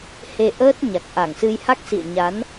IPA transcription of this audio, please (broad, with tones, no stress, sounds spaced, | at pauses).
h e˧ ʔ əː˦˥ t̚ ɲ a˨˩ k̚ ʔ a˧˩ ŋ s ɨ˧ j h a˦˥ k̚ s ḭ˧˨ ə̯ ɲ a˨˦ n